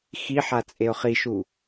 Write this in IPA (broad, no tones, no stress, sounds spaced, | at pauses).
x i ħ a t͡sʼ e ʊ̯ χ i ʃ u